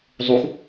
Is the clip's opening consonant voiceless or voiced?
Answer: voiced